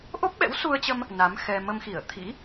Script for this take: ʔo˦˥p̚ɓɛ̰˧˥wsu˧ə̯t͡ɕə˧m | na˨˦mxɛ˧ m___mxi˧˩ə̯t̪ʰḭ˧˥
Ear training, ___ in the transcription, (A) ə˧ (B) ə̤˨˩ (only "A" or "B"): A